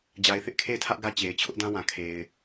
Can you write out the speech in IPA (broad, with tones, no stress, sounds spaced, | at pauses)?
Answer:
d͡ʑ a˨ ɪ̯ θ ɪ˦ ʔ kʰ e˦˨ ɪ̯ tʰ ä˦ ʔ ɡ ä˦ t͡ɕ e˨ ɪ̯ t͡ɕʰ ʊ˦ ʔ d ã˦ w ã˨ kʰ e˨ ɪ̯